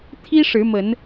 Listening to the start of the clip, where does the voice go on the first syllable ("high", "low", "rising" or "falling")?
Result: high